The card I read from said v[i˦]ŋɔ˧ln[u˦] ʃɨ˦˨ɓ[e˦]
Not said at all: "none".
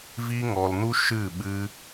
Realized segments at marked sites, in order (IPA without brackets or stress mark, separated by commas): i˦, u˦, ɨ˦